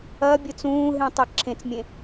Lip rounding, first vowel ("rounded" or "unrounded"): unrounded